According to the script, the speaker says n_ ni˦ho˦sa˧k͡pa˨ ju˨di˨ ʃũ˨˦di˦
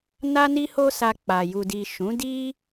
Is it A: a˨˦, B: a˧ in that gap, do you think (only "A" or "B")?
B